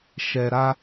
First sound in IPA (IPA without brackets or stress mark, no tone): ʃ